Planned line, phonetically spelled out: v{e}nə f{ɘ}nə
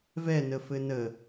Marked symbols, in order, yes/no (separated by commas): no, yes